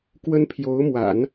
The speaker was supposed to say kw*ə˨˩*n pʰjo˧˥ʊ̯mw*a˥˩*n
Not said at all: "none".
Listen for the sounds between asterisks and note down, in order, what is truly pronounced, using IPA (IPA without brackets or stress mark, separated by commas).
ə˥, a̰˨˩˦